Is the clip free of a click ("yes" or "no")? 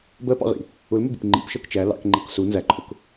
no